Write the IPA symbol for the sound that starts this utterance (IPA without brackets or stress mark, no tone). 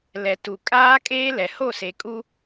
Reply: l